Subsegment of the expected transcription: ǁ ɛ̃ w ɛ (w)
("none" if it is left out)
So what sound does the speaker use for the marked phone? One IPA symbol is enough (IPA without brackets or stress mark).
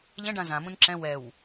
w